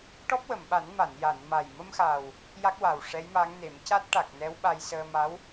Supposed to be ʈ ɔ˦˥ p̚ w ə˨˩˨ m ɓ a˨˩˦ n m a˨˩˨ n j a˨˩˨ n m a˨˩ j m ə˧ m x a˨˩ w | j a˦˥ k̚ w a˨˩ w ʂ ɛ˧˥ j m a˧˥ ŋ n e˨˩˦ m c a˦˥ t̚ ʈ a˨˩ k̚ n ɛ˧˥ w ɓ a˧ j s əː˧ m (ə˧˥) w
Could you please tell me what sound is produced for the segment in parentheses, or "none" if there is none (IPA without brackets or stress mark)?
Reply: a˧˥